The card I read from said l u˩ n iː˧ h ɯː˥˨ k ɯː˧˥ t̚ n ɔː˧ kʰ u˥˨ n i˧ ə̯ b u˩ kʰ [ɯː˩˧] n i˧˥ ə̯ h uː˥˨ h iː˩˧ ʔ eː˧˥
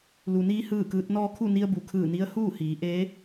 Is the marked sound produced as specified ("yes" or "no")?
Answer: no